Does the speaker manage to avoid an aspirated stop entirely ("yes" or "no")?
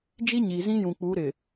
yes